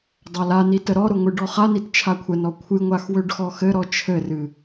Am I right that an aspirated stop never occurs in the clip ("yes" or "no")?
no